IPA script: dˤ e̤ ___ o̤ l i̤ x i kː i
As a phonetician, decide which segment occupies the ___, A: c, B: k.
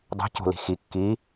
A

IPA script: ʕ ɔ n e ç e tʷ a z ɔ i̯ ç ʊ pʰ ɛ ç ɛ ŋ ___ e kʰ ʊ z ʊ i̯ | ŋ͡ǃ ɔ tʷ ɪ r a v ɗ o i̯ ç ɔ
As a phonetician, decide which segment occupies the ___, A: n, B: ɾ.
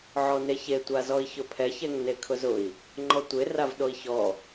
A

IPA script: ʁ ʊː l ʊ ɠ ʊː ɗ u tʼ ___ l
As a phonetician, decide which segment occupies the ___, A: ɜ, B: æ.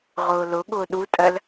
A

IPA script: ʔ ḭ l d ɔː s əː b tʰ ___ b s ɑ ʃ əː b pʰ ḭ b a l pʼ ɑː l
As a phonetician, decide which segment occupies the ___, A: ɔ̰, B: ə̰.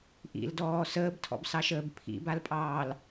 A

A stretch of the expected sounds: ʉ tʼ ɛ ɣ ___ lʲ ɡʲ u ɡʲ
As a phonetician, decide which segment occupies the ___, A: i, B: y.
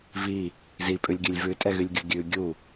B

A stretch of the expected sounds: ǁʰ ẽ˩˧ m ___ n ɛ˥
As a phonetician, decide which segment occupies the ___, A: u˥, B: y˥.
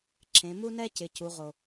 A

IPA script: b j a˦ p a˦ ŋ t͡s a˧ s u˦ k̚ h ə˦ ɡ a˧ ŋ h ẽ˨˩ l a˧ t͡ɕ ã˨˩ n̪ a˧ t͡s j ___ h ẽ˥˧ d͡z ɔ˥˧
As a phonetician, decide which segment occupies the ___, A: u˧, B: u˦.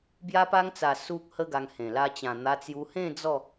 A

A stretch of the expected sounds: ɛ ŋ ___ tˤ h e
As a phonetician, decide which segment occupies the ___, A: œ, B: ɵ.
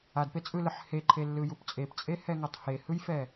A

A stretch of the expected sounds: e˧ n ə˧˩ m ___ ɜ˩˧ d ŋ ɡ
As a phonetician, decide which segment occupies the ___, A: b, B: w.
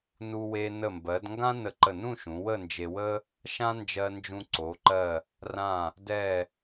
A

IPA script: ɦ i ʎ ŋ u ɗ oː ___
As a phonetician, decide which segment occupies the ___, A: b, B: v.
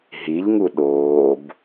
A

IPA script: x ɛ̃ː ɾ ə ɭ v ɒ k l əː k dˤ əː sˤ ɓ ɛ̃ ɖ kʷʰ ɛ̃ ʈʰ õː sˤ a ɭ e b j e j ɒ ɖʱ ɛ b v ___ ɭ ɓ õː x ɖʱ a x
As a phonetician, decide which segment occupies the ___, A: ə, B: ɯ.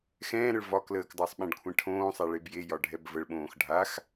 A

